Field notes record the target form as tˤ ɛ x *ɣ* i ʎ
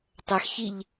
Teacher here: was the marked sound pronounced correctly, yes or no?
no